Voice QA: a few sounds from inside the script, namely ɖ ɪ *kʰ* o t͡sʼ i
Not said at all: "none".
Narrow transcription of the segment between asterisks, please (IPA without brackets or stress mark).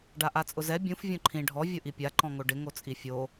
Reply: ŋ